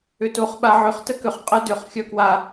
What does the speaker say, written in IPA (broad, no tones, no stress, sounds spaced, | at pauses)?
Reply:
ʏ t o χ ɓ a ʕ ʏ χ t ə k ʏ χ qʼ ə d ʏ χ xʲ œ k w a